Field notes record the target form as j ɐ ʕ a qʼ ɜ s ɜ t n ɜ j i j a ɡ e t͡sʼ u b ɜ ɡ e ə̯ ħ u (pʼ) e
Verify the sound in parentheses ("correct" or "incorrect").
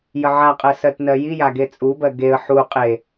incorrect